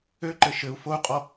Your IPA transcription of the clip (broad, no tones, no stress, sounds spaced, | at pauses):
ø ǃ ɘ ʃ ɘ u̯ f o u̯ qʼ ɔ